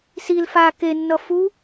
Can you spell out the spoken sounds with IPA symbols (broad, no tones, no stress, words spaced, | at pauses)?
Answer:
sil fa kenːʌ fu